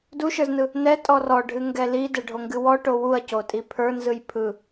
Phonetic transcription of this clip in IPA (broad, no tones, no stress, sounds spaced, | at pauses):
d u ʃ ə˞ z n ɯ | n ɛ tʼ ɔ r ɔ ɖʱ ɨ ŋ ɡ ɛ l i d ɛ ɖʱ o ŋ ɡ ɨ w ɔ ʈ o w u ɐ̯ c o tʼ i pʰ ə˞ n z ɯ j pʰ ɯ